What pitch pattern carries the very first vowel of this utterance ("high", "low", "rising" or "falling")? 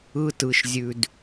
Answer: high